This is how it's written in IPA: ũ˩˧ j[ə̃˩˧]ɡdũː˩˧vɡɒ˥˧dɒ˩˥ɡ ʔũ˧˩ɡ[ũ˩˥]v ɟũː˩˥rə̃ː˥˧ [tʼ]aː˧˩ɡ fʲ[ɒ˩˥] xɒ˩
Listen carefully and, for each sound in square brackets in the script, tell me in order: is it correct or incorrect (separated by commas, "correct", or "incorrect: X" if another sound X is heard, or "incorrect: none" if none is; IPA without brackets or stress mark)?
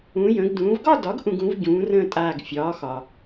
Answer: correct, correct, correct, incorrect: ɒː˩˥